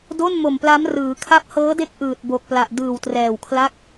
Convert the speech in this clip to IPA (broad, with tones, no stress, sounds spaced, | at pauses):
d o˥˩ n m o˨˩ m p l a˦˥ m r ɯː˩˦ kʰ a˦˥ p̚ h ɤː˦˥ d e˦˥ k̚ ʔ ɯː˨˩ t̚ b o˨˩ k̚ p l a˨˩ ʔ d ɯː˨˩ w t r ɛː˨˩ w kʰ l a˥˩ k̚